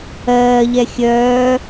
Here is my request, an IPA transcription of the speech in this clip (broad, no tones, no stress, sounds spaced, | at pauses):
ɜː ʎ ɛ xʲ œː